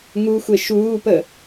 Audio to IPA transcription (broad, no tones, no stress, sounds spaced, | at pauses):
ŋ u xʷ e ʃ uː p ə